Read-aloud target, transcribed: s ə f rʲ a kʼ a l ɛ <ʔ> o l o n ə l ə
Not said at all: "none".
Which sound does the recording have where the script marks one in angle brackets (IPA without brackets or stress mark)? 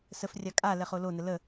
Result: χ